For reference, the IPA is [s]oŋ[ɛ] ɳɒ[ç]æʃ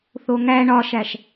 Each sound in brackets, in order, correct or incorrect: incorrect: θ, incorrect: æ, incorrect: ʃ

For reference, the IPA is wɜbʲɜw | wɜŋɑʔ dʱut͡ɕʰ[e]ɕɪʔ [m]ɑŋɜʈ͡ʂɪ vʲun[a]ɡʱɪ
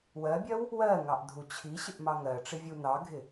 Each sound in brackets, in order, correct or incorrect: incorrect: i, correct, incorrect: ɑ

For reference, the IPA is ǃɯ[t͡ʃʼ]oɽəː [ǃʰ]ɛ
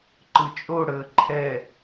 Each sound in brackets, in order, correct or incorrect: correct, correct

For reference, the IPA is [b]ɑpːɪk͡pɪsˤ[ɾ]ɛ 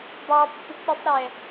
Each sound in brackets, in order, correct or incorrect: correct, correct

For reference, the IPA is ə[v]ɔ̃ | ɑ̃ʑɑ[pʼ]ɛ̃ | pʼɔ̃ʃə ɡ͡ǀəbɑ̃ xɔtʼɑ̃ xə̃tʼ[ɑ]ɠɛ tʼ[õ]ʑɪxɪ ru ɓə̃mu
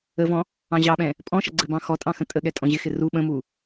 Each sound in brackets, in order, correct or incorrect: correct, incorrect: ɓ, incorrect: ə, incorrect: ɔ̃

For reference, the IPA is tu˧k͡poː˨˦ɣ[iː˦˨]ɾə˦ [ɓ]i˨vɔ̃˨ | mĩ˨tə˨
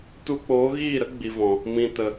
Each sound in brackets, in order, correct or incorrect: correct, incorrect: ɡ͡b

